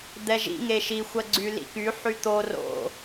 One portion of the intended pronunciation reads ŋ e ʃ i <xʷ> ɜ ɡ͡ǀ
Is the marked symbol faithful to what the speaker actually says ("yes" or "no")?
yes